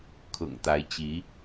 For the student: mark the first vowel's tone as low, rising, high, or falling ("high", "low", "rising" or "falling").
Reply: low